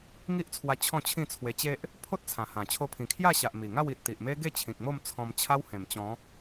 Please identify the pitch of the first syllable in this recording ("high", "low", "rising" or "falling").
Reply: high